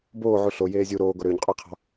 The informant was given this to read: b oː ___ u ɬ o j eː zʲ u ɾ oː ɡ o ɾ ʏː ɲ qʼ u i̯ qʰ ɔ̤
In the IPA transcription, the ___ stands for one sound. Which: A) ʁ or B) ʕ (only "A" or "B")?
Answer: B